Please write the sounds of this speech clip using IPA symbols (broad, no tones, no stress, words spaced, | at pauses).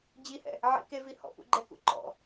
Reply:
d͡ʑihɛ̰ | ʕḭkevi hɔ̰pṵɡ͡ǃɛkṵ ǃɔ̰